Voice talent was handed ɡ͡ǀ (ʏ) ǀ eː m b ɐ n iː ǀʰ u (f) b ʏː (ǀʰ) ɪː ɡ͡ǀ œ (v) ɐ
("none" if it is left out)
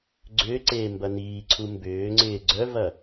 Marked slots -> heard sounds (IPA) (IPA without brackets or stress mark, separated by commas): ʏː, m, ŋ͡ǀ, v